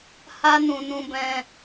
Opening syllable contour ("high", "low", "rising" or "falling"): high